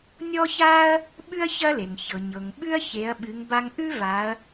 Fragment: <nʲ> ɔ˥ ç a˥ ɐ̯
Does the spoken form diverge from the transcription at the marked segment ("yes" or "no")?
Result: no